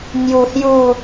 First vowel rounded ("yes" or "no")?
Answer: yes